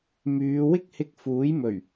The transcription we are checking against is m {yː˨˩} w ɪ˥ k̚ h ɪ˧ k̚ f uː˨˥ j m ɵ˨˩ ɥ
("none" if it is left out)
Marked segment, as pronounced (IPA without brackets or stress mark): yː˨˧